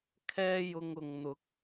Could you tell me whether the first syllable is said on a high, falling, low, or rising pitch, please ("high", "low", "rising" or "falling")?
high